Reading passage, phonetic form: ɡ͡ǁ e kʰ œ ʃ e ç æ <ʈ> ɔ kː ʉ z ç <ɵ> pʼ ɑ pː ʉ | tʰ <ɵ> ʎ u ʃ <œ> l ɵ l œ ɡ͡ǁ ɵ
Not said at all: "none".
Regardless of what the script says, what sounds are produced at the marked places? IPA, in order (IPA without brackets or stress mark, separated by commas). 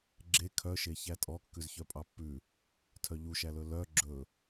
tʼ, œ, œ, æ